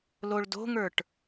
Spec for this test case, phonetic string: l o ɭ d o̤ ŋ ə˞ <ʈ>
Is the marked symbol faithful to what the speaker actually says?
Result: yes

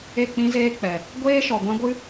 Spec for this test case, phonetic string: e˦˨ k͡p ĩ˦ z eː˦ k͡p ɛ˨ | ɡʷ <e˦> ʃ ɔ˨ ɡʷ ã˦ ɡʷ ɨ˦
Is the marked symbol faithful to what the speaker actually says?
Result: no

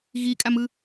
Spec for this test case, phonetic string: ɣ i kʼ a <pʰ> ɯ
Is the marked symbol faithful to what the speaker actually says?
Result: no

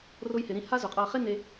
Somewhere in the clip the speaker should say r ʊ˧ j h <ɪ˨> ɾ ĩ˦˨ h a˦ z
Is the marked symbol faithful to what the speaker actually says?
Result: yes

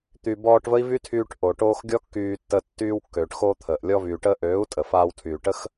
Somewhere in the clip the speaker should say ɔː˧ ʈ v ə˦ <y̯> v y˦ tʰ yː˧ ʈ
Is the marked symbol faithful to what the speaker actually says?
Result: no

